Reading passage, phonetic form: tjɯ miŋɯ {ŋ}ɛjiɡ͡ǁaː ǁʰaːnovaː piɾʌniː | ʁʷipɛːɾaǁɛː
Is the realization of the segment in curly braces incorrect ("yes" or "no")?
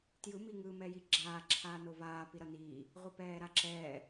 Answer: yes